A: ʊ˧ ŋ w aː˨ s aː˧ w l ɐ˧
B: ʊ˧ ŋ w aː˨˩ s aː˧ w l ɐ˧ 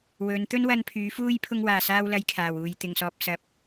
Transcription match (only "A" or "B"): B